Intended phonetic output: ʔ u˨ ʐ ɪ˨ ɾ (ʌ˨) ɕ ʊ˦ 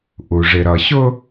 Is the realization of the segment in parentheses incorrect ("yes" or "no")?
no